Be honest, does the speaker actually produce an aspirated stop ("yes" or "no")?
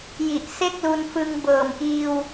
no